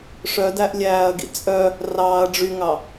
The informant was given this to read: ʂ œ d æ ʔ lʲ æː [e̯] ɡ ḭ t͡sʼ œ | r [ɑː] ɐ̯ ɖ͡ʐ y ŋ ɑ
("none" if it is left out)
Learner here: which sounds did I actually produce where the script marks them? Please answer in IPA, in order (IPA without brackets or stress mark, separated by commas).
ɐ̯, ɑː